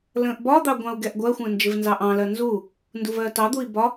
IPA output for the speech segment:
lə̃ːʔbɒd̪ɑ ɡʷɑ̃u̯ɡɛʔɡʷɜxʷə̃ː nd͡ʒɪvnzɑʔɑ̃lɜ nzu | nduvɜtɑd̪ui̯ bɒ

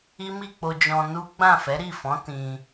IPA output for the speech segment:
i˦mi˦˨k͡po˧ d͡ʒɔ̃˧nu˦ ɡ͡bã˦˨fɛ˨˦ɾi˦˨fɔ̃˨˦ tĩ˧

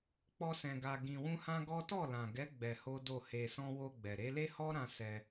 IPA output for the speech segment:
k͡pɔ˦sɛ̃˧ ɡa˧ ɡĩ˧wũ˦hã˦ɡɔ˦ tɔ˦˨lã˨ɡɛ˨˦ ɡ͡bɛ˧ho˦do˦˨ he˧sɔ̃˦ wo˧ɡ͡bɛ˨ɾe˨˦ le˦hɔ˦ɾã˧ sɛ˧

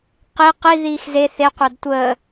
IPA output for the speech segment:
qi qi ðiːxze θe qʷadtʷəː

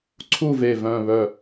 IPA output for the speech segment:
ǀʰu˥˨ve˧˩vœ̃˧˩ βœ˧˩

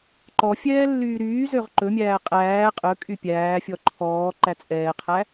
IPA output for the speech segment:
ǃɔfʲɛː lːyːɾyːzøʁ ǃɵmʲæː qʼæː qʼɵ kʼypʲæːfʲɔ ǃʰɔː ǃæt͡sʼɛːqʰæ

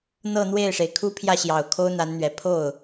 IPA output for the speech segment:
n̪ɤ˥˧n̪we˥˩ɪ̯ʂe˩ɪ̯ kʰu˥pʰjä˥˩ɕjɑ˨˩ʊ̯ kʰo˥ʊ̯n̪a˧˥nn̪ɥɛ˨˩ pʰo˥˩ʊ̯

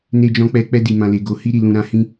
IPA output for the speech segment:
ne˧d͡ʒɔ̃˧k͡pɛ˧ k͡pɛ˧di˨ mã˨le˨ ɡo˨hi˧ɾi˨lũ˨ ɾã˨˦hĩ˦

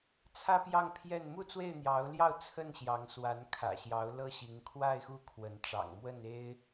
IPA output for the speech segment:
t͡sʰä˦pjɑ˥˨ŋpʰjɛ˥˨n mu˥˨t͡swe˥˨ɪ̯n̪jɑ˨˦ʊ̯ljɑ˥˨ʊ̯ t͡sʰə˥˨n ɕjɑ˨˦ŋswa˨˦n kʰä̰˨˩ɕjɑ˨˦ʊ̯ lɤ˦ɕi˨˦ŋ kʰwa˥˨ɪ̯xu˦ kʰwə˨˦nʈ͡ʂɑ̰˨˩ŋmwə˥˨n e˦ɪ̯

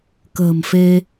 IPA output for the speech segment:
kə̤ː˨˩mfe˧

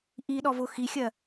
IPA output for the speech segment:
ʔiɗɔvʊ xixʲɜ

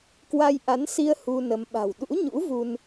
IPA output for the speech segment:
kwa˧jʔa˨˦nsi˧ə̯ hu˧nə˨˦m ɓa̤˨˩w ɗṵ˧˥ɲṵ˧˥ vu˧n

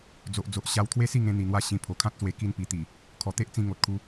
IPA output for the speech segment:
d͡zo˨ʔd͡zo˨ʔ ɕa˧w t̪ʰwe˦si˥˧ŋẽ˧ n̪i˨˩n̪wa˧ɕĩ˨˩ pʰo˨˩kʰã˦t̚swe˧ ki˧npi˨˩t̪i˨˩ | kʰɔ˨˩t̪e˦ʔt͡sĩ˧ ŋo˨t̚kʰu˧

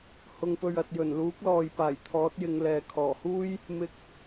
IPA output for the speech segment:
hʊ˨ŋpɵ˨ɥɐ˨t̚ jɵ˨˩nluː˨˥k̚lɔː˨j paː˨˩jt̪ʰɔː˨˥t̚jɪ˨˧ŋlɛː˨ kʰɔː˨˩huː˥j | mɪ˧k̚

